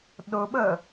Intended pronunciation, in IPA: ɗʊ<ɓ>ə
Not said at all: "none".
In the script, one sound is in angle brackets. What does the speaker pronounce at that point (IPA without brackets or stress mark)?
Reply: ɓ